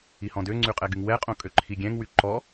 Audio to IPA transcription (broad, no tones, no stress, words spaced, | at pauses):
ihɔ̃døŋ͡ǀy qʼɛɡyŋwɛqʼõ kʼøǃʰiɡʲɛ̃ŋwy ǃɔ